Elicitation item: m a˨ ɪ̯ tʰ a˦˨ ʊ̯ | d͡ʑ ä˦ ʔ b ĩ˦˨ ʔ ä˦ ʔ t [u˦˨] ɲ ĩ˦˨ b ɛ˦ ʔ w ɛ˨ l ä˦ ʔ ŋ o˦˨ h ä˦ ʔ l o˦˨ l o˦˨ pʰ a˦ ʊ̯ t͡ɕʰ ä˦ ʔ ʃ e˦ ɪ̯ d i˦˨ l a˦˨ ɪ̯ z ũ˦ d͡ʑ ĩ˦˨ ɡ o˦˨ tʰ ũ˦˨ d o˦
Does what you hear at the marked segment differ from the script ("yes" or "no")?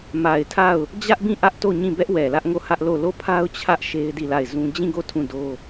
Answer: yes